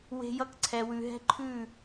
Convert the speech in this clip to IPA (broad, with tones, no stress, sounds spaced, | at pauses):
w e̤˧ j ʌ˧ k ǀʰ ɛ˨ w ʉ˨ ɦ ɛ̤˦ ǃʰ ʉ˦˨